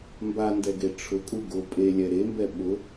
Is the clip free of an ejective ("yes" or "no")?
no